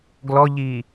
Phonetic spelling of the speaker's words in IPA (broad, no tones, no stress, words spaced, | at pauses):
ɡlɔʎi